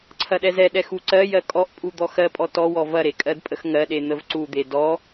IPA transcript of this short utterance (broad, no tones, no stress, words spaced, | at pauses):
ǀʰɐɗɛzɛɗɛ xuǀɜjɜ kʼɔʔpʼu d̪ɔxɜpʼɔ tɔwɔ vɐɾe kʼɜdpʼəxŋɜɗe n̪əvǀud̪e dɔ